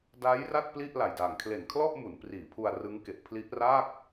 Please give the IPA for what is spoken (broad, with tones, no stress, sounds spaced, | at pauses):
d a˦˥ j r a˥˩ t̚ p l i˥˩ ʔ l a˨˩ j d aː˨˩ ŋ kʰ l e˨˩ n kʰ l ɔ˥˩ ʔ m u˩˦ n p r iː˩˦ pʰ u˧ a̯ r ɯ˦˥ ŋ k e˨˩ ʔ pʰ l i˦˥ ʔ r a˥˩ k̚